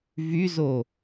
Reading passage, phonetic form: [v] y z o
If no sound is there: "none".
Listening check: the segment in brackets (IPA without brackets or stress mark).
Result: v